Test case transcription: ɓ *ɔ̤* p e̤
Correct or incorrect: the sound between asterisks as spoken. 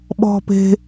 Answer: correct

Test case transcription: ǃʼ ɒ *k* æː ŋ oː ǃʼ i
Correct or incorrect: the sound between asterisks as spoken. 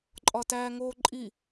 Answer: incorrect: t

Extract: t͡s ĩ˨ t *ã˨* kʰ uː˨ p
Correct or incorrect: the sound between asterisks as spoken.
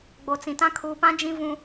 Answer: incorrect: ã˦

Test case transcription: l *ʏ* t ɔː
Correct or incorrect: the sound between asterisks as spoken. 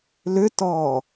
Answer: correct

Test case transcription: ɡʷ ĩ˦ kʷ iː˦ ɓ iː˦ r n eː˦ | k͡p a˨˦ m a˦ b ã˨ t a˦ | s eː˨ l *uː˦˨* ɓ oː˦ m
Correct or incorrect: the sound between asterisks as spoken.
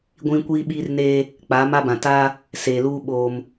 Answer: incorrect: uː˦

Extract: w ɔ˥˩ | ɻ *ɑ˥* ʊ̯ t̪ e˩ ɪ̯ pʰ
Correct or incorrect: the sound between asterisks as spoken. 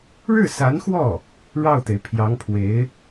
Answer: incorrect: ɑ˥˩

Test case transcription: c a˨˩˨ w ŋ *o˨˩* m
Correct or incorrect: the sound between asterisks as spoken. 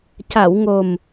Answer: correct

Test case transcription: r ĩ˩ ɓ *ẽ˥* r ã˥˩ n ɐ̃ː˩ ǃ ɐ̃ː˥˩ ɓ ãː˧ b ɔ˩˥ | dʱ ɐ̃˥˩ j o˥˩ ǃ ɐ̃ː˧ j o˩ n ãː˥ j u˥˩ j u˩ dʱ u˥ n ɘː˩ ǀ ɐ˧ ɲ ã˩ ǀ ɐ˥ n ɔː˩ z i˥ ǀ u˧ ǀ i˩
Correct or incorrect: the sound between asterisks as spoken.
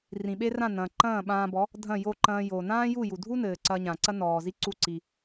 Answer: incorrect: e˥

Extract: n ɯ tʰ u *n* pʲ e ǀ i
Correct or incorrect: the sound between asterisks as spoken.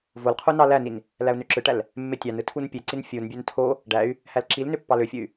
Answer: correct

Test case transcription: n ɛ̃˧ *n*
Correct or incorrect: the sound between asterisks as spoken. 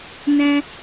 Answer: incorrect: none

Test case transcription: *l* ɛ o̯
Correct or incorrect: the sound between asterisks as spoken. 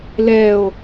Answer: correct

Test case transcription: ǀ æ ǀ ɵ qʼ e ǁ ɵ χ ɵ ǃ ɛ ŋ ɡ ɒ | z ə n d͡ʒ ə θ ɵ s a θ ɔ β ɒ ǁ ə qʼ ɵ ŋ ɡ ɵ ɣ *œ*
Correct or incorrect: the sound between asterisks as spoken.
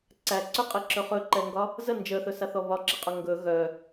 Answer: correct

